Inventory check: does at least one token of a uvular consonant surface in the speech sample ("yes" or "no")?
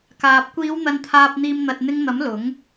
no